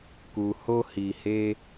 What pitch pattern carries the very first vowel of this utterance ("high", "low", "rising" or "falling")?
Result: low